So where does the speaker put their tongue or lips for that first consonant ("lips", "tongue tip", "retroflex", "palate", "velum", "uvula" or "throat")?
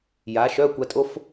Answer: palate